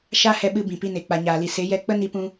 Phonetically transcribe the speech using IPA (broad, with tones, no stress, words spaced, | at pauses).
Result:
ʃa˦hɛ˧ɓɨ˧ bĩ˨pi˧ne˨ k͡pa˨ɲaː˨li˨ se˨˦jɛ˧ k͡pə˦ni˧pũ˧